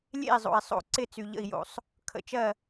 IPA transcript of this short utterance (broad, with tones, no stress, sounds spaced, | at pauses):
lʲ ḛ˥˩ i̯ zˤ o̰˩ i̯ sˤ o̰˧˩ ǀ ɪ˥˩ t͡s y˩ ʎ ə̰˧˩ i̯ j o̰˩ sˤ | kʰ ə̰˧˩ t͡ʃ ɜ˥˩